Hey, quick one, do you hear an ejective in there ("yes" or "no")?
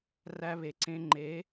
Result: no